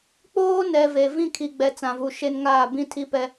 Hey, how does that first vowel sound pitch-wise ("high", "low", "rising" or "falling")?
high